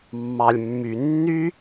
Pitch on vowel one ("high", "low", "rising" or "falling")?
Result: low